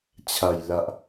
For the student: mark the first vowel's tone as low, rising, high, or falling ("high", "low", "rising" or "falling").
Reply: low